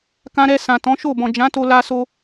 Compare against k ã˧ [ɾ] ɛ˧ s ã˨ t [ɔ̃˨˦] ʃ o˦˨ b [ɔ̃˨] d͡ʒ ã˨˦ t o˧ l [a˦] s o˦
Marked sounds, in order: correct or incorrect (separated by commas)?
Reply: correct, correct, correct, correct